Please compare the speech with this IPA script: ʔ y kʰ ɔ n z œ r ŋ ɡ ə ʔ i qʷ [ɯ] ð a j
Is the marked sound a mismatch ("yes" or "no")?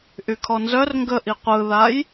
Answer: no